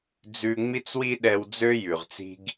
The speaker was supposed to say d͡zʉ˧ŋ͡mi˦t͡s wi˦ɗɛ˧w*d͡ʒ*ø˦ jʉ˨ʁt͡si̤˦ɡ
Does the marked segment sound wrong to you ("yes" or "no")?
yes